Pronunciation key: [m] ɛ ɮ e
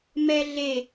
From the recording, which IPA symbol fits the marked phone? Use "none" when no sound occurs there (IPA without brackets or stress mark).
m